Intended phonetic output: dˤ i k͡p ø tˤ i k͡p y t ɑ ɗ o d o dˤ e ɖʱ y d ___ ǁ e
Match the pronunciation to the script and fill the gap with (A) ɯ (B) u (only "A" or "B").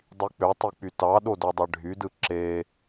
A